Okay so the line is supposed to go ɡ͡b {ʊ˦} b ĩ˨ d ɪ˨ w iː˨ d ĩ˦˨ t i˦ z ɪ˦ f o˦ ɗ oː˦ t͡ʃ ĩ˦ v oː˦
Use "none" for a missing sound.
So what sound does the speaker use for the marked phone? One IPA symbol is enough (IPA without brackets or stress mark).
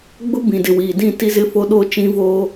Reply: ʊ˦